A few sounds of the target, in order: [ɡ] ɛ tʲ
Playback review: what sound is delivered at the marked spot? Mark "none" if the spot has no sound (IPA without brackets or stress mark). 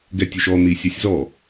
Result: ɡ